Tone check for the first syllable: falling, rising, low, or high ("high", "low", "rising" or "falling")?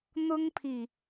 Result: high